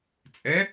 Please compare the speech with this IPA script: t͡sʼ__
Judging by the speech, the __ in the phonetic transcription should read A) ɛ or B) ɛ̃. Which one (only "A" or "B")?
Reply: A